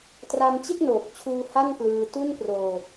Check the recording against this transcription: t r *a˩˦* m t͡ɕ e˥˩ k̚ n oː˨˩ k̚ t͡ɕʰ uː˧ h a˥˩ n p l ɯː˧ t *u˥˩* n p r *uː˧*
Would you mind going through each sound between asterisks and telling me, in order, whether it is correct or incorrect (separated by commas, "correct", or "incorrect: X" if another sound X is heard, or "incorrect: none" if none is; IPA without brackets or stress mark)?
incorrect: a˧, correct, incorrect: oː˧